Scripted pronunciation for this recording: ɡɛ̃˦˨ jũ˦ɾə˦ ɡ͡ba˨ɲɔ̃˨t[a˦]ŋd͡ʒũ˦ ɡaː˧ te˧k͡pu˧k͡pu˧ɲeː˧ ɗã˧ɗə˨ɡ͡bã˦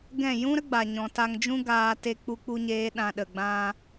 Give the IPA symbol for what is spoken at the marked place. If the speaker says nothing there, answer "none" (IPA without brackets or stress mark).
a˧